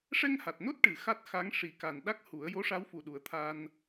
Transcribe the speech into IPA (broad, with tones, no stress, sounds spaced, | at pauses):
ʂ ɛ˧ ŋ h a˨˩ t̚ n o˦˥ t̚ ʈ ɨ˨˩ x a˦˥ t̚ x a˧˥ ŋ ʂ i˨˩ k a˨˩ n ɗ a˦˥ k̚ h u˨˩˦ ə̯ j o˧˥ ʂ a˧˥ w f u˨˩ ɗ u˨˩˦ ə̯ t̪ʰ a˧ n